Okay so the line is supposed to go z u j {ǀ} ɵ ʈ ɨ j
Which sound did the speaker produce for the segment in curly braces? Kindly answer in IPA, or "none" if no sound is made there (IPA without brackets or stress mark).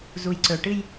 ǀ